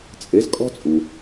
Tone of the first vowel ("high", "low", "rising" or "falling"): rising